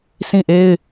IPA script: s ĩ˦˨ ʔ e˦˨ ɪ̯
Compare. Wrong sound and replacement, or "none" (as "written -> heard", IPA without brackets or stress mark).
e˦˨ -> e˦